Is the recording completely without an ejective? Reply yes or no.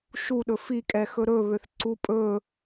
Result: no